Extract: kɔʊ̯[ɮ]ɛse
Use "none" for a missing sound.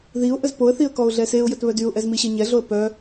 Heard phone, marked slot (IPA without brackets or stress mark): ɮ